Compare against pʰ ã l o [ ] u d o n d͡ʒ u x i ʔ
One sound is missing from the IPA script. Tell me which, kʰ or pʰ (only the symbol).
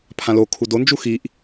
kʰ